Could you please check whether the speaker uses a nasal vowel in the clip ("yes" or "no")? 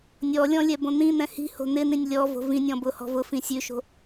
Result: yes